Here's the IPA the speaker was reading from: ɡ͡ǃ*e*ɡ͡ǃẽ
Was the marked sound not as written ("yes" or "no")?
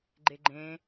no